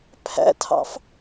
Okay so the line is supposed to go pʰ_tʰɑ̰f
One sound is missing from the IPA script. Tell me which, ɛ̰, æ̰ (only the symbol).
æ̰